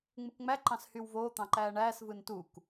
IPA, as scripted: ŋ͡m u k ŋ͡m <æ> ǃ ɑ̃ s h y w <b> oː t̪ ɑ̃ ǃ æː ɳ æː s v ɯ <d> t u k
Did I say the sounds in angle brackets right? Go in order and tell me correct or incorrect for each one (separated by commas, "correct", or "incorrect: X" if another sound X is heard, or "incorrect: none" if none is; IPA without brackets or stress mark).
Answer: correct, incorrect: v, incorrect: n